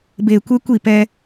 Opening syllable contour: low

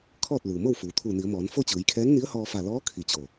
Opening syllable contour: falling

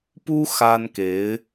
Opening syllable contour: high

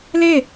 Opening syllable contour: falling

